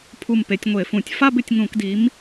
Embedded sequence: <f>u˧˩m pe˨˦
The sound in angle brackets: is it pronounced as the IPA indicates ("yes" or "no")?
no